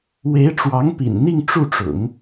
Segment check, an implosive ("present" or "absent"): absent